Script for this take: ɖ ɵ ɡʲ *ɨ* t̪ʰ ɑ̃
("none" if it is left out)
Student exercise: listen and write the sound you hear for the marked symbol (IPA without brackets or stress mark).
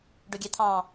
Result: ɛ